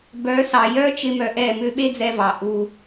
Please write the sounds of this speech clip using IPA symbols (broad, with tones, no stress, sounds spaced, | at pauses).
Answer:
b œ˨˦ s ɑ˨ j œ˦ t͡ʃ ɪ˦ m œ˧ ʔ ɛ˦˨ m ʏ˦ ɓ e˦ d͡z ɛ˧ v ɑ˨ ʔ u˦